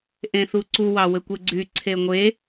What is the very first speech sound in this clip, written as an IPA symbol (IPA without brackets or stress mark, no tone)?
ʔ